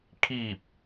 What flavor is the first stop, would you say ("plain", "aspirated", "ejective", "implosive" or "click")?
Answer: aspirated